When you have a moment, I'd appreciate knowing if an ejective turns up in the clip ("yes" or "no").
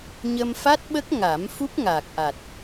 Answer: no